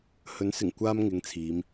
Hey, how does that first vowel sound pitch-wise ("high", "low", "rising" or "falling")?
rising